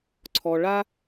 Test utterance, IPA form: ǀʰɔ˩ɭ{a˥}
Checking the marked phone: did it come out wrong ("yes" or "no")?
no